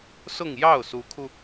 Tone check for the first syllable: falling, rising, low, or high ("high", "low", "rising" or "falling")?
falling